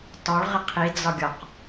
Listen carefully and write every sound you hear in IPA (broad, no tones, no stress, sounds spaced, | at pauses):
t ɒ ɭ ʁ ɪ qʰ i d͡z ɒ ɡʲ ɒ q